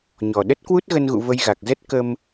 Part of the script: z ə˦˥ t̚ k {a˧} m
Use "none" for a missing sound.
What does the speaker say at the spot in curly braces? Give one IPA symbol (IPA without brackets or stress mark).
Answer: ə˧